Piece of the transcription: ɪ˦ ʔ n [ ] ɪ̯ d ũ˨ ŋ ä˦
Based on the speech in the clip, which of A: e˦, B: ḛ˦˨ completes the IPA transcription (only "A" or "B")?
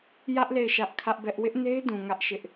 A